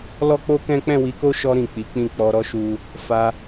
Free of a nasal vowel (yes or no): no